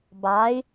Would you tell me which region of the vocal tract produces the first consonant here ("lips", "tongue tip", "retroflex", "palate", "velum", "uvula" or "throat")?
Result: lips